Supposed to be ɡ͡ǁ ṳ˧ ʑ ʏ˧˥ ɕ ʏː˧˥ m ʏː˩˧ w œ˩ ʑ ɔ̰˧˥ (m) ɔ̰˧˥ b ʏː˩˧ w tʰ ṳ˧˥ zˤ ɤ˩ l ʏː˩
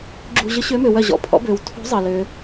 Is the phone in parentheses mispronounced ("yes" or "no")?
yes